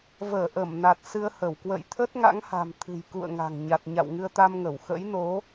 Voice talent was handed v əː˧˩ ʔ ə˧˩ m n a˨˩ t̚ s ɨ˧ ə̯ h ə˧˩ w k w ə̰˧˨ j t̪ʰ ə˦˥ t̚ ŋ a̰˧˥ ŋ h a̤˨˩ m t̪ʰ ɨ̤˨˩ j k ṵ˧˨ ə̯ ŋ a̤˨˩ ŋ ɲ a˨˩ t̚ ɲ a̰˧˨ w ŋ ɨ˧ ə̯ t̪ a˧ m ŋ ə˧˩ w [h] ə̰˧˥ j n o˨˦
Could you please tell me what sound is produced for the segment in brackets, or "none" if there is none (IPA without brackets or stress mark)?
x